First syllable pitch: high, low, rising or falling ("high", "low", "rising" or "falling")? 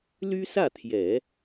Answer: high